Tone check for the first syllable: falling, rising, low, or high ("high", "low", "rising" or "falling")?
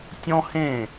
high